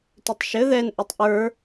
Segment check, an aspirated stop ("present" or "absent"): absent